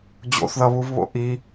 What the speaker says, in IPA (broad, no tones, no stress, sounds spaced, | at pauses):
d͡ʑ o̰ θ ð ʌ β u v β o̰ ʔ i